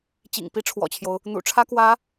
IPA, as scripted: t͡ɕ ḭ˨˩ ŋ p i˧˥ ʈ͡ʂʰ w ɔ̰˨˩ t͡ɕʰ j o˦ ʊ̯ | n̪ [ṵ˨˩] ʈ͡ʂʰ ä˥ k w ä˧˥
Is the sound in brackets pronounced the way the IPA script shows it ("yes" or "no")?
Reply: yes